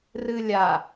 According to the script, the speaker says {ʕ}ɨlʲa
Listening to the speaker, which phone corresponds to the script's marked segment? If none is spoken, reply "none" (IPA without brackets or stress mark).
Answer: r